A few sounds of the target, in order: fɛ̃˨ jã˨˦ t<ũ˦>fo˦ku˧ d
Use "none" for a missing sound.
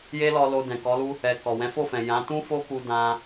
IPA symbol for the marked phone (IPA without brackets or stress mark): ũ˦